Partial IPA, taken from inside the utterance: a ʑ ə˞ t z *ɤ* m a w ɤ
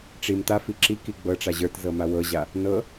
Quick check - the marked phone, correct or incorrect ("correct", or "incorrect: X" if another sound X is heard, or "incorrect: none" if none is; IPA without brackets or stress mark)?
correct